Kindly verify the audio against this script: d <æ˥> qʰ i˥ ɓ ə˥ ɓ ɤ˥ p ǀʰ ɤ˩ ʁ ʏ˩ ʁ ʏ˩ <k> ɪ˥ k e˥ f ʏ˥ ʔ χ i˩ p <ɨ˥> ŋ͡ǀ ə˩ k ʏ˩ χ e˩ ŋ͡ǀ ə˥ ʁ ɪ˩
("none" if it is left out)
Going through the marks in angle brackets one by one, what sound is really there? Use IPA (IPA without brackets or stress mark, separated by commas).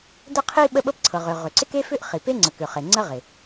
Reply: ə˥, ǀ, e˥